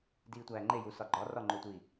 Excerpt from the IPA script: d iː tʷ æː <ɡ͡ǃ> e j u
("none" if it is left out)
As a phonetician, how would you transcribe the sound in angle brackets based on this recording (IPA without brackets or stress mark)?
ŋ͡ǃ